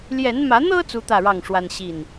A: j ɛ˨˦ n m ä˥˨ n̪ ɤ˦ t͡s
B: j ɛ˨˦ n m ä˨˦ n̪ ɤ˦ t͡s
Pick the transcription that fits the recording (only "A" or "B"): B